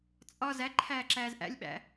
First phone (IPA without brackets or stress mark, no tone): t͡sʼ